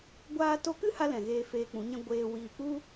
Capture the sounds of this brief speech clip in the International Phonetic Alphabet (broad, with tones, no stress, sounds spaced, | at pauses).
ɡʷ aː˧ t o˧ k ɨ˦ h a˦ l ɛ̃˨ ɣ eː˧ f eː˧ k͡p ũ˨˦ ɲ ɛ̃˦ ɡʷ eː˧ w iː˨ k͡p u˦